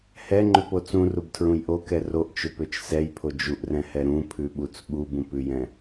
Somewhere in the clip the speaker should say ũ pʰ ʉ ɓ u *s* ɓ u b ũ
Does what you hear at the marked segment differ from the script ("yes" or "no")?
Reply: yes